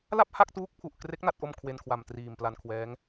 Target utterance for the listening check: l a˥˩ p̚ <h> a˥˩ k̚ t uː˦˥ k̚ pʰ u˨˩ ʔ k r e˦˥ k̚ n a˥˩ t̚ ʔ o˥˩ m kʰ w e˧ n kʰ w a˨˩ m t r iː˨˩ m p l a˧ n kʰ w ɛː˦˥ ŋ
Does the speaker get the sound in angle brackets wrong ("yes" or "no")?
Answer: no